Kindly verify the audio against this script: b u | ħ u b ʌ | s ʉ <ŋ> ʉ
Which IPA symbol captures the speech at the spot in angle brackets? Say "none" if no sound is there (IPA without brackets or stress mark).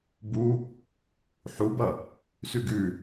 ɡ